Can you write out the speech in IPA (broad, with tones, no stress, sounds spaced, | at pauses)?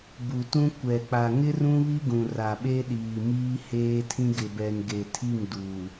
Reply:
b u˨ t ũ˦ kʷ ɛ˨ k͡p a˨ ŋ ɪ˦ r ũ˦ β i˦ ɡ ũ˨ r a˨ ɓ e˦ ɗ iː˨ m iː˦ h eː˦ tʰ ĩ˦ ɡ ɪ˨ b ɛ˨ n ɡ e˨ tʰ i˦˨ ŋ d uː˨